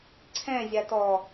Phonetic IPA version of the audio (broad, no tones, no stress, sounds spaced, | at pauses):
ǀʰ ɛ̃ zʲ a t ɔ